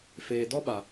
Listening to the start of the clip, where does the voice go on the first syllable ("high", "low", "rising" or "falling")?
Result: low